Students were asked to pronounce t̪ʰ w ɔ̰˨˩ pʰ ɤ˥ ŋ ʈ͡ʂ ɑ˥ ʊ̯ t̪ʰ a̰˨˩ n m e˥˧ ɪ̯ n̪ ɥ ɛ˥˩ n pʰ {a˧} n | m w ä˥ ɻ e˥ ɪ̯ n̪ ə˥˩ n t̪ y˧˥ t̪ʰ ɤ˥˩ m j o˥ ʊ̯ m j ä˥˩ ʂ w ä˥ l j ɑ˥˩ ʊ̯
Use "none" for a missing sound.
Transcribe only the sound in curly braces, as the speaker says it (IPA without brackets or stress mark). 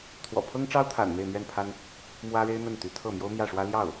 a˥